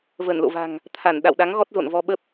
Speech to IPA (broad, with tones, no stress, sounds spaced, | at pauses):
v əː˧˩ n l o̰˧˨ v a̤˨˩ ŋ | t̪ʰ a˧˩ n ɗ a̰˧˨ w ɗ a˨˦ ŋ ɣ ɔ˦˥ t̚ z o̰˧˨ n v ɔ˧ ɓ ə˦˥ p̚